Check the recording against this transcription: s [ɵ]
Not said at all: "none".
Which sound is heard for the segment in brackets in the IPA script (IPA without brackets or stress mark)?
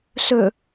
ɵ